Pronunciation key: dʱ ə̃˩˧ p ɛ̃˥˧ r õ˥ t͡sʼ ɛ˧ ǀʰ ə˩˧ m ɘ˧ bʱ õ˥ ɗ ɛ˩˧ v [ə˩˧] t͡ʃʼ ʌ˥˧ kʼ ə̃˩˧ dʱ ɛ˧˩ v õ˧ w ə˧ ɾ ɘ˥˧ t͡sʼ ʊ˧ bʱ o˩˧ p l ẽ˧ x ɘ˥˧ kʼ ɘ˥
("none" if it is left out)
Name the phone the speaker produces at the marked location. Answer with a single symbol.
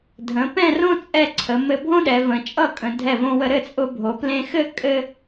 ə̃˩˧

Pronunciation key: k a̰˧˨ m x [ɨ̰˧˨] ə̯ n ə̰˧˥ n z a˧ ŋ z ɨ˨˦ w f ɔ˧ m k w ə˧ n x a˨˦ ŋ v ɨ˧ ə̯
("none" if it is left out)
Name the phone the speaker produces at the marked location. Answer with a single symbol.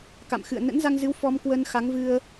ɨ̰˧˨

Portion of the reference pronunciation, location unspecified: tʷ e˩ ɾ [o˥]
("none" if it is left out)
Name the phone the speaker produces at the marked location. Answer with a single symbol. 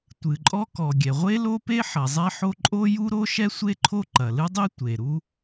u˥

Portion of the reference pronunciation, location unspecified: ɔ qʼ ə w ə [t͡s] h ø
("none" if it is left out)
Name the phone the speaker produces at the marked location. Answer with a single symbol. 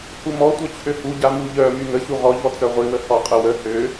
none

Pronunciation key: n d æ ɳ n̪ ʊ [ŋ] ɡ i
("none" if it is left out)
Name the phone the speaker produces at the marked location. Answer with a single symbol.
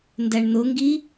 ŋ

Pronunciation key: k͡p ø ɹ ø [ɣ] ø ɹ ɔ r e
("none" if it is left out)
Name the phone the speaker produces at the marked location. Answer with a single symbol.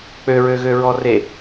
ɣ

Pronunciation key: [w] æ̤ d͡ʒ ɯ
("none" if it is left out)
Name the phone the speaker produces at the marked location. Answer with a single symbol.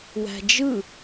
w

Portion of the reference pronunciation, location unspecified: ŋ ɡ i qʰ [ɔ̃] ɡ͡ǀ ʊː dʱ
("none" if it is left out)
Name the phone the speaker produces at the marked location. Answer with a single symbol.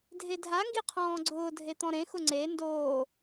ɔ̃ː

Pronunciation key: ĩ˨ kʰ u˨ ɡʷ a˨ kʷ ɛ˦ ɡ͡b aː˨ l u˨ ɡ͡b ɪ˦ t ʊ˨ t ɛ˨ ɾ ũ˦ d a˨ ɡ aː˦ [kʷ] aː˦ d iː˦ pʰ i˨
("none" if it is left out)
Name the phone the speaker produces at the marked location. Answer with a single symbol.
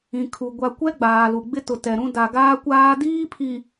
kʷ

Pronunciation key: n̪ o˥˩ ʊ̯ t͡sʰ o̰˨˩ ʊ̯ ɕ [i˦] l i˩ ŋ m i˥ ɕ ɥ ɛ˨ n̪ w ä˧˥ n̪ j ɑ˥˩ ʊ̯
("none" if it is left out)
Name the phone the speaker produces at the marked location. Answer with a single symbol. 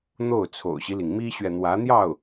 i˦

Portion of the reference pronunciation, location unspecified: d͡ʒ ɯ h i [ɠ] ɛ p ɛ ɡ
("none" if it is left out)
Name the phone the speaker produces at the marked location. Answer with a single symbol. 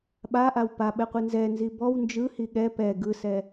ɠ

